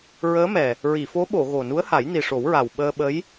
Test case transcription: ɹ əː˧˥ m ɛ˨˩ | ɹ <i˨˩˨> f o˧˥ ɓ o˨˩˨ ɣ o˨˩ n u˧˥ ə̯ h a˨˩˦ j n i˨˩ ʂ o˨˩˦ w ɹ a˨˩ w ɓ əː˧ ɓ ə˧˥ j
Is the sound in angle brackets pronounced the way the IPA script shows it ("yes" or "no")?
yes